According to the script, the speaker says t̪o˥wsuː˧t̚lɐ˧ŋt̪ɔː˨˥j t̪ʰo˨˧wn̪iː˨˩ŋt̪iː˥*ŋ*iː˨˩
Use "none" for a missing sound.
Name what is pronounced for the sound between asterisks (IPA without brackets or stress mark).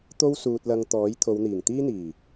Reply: n̪